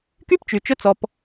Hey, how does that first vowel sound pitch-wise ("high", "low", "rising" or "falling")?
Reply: high